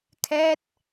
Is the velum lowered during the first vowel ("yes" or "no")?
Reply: no